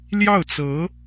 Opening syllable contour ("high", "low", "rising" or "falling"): falling